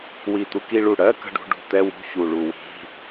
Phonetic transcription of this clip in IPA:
w i˨˩ t̪ u˧ k i˧ ɭ u˨˩ ɽ ɜ˧˥˧ k ə̤˥˧ ɖ ṳ˧˥˧ ɖ ṳ˧˥˧ t̪ ɛ˧˥˧ w ṳ˧˥˧ ç u˨˩ ɭ u˨˩ w i̤˧˥˧

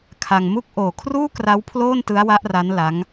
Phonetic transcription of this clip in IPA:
kʰ a˧ ŋ m u˥˩ k̚ ʔ oː˨˩ kʰ r uː˥˩ k r a˦˥ w pʰ l oː˥˩ n t ɯ˦˥ a̯ w a˦˥ ʔ r a˦˥ n l a˦˥ ŋ

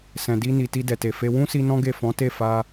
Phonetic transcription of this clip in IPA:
s ɛ̃˨ d i˧ n i˨ t i˧ d ɛ˨ t e˨ f e˧ w ũ˦ s i˧ n ɔ̃˦ ɡ e˦˨ f ɔ̃˨˦ t e˦˨ f a˧

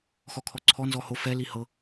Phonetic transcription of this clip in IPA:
x ɔ kʰ ɔ ǀʰ ɔ n z ɔ h o f ɛ l i h ɤ

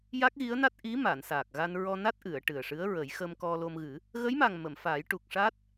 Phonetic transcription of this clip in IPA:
j a˦˥ k̚ ɣ i˧˥ ə̯ n a˦˥ t̚ ʔ i˧˥ m a˨˩˨ n s aː˨˩ k̚ ɣ a˧ n ɹ ɔ˧ n a˦˥ t̚ ʔ ɨ˨˩˨ ə̯ ʈ ɨ˨˩ ə̯ ʂ ɨ˧˥ ə̯ ɹ ə˨˩˦ j x ə˧ m k ɔ˧ l o˧ m ɣ ɨ˨˩˦ | ɣ ə˧˥ j m a˨˩ ŋ m ə˨˩˨ m f aː˨˩˦ j ʈ u˨˩ k̚ ʂ a˦˥ t̚

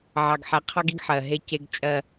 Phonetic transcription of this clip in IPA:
ʕ ɑ˨ ɡ ħ ɛ˨ qʰ ɑ˦ ɡ i˦ ɡ ħ ɜ˨ ɦ e˦ c e˦ ɡ t͡ʃʼ ɜ˦

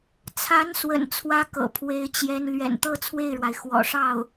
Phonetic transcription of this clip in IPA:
t͡sʰ a˧˥ n s w ə̰˨˩ n t͡sʰ w ä˥ k ɤ̰˨˩ pʰ w e˧˥ ɪ̯ t͡ɕ j ɛ˧˥ n l ɥ ɛ̰˨˩ n t̪ ɤ˥ t͡sʰ w e˥˩ ɪ̯ ɻ w a˩ ɪ̯ x w ɔ̰˨˩ ʂ ɑ˥˩ ʊ̯

